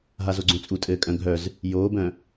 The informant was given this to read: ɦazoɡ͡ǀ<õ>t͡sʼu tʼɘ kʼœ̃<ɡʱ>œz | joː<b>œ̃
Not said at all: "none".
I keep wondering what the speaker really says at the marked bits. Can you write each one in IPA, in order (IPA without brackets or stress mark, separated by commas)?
õ, ɡʱ, b